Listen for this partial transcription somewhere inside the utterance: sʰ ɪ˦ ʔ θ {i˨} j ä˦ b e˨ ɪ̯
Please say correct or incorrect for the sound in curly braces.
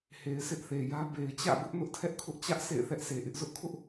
incorrect